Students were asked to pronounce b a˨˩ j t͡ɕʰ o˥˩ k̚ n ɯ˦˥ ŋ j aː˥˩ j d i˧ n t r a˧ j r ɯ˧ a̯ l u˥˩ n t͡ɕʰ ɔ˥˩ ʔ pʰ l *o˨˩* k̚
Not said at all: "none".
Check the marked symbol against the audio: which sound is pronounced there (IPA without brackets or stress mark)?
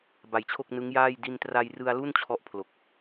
o˨˩